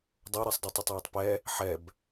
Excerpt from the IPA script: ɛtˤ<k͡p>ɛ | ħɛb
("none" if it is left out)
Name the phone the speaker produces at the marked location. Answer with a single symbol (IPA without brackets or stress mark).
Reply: p